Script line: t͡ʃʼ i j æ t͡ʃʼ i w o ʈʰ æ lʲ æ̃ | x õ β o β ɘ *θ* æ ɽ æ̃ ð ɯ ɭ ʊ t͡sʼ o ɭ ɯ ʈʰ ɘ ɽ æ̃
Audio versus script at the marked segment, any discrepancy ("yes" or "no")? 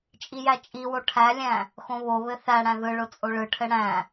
no